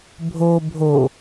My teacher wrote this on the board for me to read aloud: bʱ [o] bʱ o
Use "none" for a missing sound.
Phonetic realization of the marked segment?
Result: o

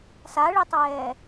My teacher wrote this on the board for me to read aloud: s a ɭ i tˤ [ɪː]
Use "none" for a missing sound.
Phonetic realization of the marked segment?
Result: ɛː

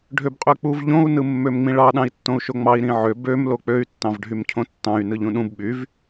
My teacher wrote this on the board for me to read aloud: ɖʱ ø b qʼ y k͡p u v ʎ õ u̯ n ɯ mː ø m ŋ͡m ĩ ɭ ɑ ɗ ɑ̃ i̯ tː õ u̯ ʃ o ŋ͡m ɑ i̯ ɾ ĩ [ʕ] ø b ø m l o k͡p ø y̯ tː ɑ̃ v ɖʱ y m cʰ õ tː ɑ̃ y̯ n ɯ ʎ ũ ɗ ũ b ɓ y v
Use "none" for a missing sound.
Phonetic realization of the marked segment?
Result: ʕ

